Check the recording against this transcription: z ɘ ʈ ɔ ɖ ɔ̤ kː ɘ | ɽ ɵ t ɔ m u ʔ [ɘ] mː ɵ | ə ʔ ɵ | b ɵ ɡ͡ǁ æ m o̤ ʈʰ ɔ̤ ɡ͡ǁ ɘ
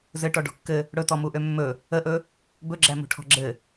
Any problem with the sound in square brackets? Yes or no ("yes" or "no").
yes